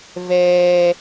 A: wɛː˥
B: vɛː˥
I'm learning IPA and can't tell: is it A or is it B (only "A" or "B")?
B